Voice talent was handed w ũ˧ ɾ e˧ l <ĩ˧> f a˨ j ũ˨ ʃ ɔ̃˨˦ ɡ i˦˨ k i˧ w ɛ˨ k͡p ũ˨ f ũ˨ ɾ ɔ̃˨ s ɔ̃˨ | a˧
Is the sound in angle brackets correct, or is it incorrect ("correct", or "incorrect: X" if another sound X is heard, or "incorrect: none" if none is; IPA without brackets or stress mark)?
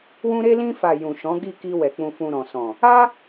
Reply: correct